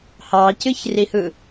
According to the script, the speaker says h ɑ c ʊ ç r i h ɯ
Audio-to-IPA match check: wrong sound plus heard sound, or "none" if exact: ʊ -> ɯ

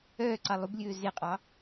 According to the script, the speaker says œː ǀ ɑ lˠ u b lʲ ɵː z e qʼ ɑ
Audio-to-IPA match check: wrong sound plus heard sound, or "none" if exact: none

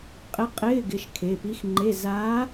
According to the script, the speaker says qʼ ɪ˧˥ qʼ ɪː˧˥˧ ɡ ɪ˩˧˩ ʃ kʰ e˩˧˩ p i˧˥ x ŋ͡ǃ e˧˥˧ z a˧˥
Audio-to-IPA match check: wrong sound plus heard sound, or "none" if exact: none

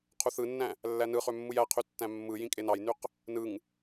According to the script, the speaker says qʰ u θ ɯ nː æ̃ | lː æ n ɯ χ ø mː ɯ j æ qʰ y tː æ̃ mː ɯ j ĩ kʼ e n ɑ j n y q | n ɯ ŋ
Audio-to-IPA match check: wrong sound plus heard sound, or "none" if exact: none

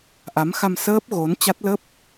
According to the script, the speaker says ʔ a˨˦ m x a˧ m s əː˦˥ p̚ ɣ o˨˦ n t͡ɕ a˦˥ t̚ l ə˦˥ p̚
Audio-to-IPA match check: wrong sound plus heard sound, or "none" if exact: none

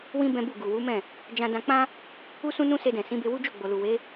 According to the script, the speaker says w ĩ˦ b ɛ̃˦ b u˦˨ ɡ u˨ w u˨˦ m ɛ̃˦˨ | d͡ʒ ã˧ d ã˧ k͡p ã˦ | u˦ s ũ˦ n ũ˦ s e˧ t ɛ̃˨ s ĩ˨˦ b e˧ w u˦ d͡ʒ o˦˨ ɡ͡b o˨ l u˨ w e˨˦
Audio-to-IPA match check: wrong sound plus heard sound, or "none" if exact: t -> d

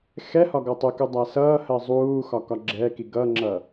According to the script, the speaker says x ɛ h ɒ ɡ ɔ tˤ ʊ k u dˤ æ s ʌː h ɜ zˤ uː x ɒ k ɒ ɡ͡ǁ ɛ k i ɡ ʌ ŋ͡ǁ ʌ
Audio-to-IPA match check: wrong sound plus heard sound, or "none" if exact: none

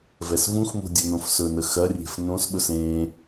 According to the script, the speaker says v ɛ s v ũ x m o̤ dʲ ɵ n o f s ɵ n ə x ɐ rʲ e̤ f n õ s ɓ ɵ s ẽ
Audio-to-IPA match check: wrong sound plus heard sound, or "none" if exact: o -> õ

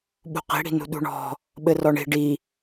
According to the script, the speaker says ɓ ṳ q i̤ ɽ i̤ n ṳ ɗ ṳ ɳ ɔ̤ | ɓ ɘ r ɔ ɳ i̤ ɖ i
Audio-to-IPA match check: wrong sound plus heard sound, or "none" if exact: none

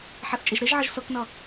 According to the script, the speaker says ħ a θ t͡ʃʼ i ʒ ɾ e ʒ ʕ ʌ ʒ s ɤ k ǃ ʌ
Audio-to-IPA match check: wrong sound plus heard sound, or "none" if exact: ǃ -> n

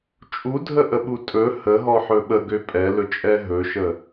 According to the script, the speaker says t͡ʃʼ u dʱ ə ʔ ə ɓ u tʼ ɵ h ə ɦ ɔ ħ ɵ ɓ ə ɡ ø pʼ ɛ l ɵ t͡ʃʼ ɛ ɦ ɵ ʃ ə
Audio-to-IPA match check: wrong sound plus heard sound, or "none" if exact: none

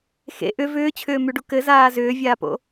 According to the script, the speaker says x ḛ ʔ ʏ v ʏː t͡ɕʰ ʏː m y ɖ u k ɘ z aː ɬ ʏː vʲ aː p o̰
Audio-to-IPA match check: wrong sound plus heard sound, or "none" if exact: ɬ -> z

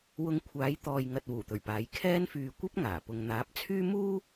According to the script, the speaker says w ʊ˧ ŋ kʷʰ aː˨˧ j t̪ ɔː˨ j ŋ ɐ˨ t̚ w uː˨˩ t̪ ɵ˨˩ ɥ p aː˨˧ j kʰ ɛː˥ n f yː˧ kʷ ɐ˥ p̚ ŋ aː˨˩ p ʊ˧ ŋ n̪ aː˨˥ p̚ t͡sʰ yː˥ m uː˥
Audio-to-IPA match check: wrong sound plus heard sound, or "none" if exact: none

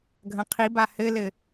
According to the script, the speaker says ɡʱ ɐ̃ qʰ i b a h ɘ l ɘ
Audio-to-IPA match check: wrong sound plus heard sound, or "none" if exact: none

